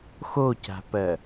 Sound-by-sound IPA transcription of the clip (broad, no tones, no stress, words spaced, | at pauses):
xoca̤pɜ